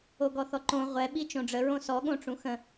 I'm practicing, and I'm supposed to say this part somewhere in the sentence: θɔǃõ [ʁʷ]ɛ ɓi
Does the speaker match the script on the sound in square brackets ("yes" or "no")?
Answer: yes